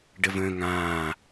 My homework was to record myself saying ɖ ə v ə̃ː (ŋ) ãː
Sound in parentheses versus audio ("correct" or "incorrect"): correct